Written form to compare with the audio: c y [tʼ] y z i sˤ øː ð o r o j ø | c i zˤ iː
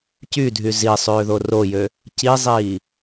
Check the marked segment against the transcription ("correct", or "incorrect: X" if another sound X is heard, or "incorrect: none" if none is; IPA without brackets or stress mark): incorrect: dʱ